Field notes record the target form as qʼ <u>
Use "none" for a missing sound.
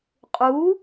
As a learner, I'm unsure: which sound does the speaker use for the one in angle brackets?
u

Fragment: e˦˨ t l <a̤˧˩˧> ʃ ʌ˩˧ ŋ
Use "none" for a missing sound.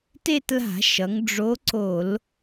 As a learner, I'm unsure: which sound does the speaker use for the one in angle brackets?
a̤˧˩˧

